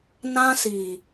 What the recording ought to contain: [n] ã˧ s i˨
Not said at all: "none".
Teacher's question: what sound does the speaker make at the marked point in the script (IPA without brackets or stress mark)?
n